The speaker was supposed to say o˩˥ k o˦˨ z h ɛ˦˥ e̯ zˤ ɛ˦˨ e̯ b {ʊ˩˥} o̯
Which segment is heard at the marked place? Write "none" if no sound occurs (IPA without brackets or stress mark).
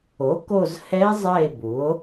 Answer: u˩˥